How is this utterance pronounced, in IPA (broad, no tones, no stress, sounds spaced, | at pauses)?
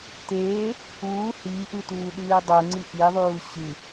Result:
t eː | uː h iː ʔ ɨ t uː ɗ ɨː dˤ u ŋ͡ǀ i ʔ i ðˤ uː ɕ ɨ